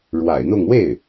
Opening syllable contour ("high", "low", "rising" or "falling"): low